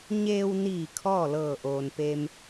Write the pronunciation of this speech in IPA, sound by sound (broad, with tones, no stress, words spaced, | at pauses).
ɲeː˧wniː˧˩ kʰɔː˥˨lɤː˧˩ ʔoː˩npeː˧m